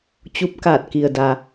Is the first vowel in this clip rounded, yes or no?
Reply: yes